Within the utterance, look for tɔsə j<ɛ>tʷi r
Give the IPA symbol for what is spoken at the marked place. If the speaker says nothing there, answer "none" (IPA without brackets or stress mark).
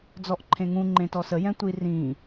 ɛ̃